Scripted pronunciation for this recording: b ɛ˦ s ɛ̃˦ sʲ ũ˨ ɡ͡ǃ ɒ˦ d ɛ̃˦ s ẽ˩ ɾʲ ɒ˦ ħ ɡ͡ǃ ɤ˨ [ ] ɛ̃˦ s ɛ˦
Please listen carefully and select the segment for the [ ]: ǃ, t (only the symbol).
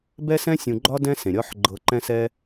ǃ